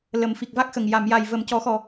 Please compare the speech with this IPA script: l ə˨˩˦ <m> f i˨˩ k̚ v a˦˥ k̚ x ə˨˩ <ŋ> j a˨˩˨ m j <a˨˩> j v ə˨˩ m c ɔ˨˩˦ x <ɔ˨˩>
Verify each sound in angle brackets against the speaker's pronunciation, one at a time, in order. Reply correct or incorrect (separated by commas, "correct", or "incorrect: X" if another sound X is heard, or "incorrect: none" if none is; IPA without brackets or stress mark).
correct, correct, correct, correct